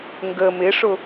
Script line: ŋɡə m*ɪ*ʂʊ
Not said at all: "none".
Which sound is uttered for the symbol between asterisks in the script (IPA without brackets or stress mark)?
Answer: ɪ